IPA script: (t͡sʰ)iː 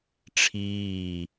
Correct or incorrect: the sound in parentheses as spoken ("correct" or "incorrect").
incorrect